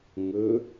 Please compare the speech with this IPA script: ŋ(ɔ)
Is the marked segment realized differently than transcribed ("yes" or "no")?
yes